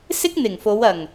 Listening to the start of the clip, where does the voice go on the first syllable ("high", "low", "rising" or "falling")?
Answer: high